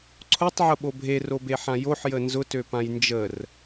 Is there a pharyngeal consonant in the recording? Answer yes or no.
yes